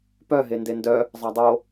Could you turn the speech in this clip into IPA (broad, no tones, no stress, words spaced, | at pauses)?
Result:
pœɦe ndendœ | zˤɑdˤo